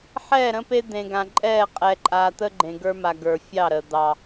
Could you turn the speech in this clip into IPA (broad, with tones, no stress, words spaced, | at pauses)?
ħɛ˦˨ɾə̃˦pe˦ d̪ẽ˨ɡã˨ǃʼɛ˦˨ qʼɛ˨ǃʼa˨t̪ə˦ ɡ͡ǃẽ˨ɡə˞˦ma˨ ɡə˞˨fʲɑ˦˨ɾə˨ d̪ɑ˨